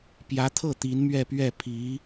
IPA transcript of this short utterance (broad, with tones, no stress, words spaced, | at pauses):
pjä˧˥t̪ʰɤ˥˩ t̪i˧˥nmɥɛ˥˧pɥɛ˥˩ pʰi˧˥